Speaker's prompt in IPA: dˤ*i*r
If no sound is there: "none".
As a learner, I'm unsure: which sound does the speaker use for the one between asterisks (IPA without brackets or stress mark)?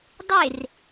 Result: e